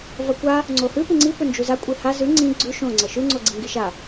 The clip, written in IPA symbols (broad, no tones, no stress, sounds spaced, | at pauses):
v ɐ kʷ a | ŋ͡ǀ o h ʉ p ɨ ŋ͡ǀ i p ɵ n d͡ʒ u z a kʷʼ i h a z ʉ ŋ͡ǀ ĩ ɡ͡ǀ ʉ ʃ õ ŋ͡ǀ ɐ ʃ ʉ ŋ͡ǀ o ɡ͡ǀ i ŋ ɡ i ʃ a